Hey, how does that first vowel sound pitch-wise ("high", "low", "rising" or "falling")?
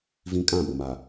high